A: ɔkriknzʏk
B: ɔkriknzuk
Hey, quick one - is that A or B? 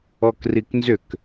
A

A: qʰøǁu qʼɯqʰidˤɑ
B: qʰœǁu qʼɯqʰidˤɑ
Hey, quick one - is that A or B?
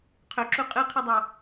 A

